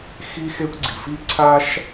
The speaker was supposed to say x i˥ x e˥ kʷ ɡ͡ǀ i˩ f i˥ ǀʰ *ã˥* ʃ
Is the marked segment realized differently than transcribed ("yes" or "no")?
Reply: yes